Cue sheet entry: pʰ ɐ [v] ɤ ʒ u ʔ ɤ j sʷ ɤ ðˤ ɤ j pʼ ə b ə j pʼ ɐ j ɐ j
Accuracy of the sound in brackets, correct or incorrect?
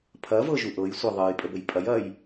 correct